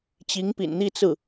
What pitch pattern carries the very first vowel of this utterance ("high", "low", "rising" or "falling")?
rising